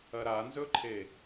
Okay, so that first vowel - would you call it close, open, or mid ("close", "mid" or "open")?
open